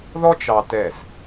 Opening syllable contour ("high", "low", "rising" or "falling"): high